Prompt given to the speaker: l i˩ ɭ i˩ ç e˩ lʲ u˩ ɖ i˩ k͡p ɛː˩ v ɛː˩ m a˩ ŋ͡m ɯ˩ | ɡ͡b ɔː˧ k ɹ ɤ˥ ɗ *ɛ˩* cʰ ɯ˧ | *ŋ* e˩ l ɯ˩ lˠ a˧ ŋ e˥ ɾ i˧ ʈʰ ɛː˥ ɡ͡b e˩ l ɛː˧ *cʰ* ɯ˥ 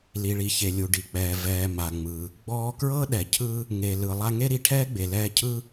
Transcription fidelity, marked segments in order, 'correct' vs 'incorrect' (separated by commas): correct, correct, correct